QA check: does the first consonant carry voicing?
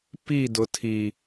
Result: no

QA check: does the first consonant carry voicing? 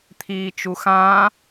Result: no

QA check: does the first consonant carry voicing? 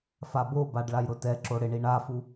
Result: no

